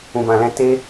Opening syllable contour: low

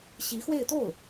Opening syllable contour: rising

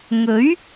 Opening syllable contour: rising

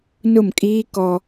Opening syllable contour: falling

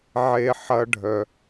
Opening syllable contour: high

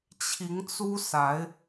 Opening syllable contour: rising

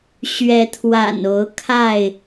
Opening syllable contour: rising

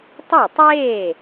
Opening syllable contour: falling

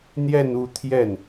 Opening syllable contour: falling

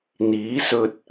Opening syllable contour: rising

